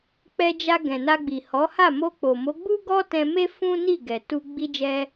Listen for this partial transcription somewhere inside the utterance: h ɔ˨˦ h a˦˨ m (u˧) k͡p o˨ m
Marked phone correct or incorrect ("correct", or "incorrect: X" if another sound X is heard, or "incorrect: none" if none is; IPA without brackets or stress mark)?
incorrect: o˧